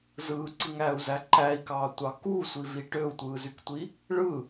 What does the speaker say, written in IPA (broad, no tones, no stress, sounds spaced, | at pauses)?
z ɯː ǀ i ŋ æː u̯ z æ ǃ æ i̯ k ɑː tʷ ɑ k u sʷ i v i ʈ ø u̯ tʷ ɯː z y k tʷ i | ɭ ɯ